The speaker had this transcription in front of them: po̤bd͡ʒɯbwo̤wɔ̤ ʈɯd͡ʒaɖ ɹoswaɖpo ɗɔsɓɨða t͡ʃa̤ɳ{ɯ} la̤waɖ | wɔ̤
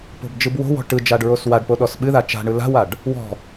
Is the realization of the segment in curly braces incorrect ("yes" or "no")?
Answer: no